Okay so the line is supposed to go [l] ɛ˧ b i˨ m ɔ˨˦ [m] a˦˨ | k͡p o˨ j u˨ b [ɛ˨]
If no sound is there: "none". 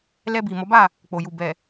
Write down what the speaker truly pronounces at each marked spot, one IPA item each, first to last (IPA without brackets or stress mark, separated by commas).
l, b, ɛ˨